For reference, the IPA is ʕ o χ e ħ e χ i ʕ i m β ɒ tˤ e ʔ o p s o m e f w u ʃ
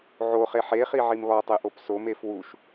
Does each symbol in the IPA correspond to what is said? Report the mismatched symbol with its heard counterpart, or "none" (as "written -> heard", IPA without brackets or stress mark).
none